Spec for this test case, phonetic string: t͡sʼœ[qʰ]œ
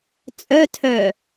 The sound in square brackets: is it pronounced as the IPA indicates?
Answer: no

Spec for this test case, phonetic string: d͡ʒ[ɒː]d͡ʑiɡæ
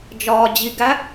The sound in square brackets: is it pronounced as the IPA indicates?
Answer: yes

